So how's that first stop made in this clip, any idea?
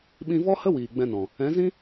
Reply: implosive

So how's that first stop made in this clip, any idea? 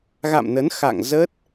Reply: plain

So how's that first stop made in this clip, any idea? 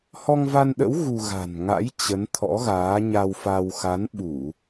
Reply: implosive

